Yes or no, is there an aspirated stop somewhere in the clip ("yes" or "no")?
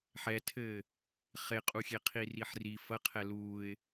yes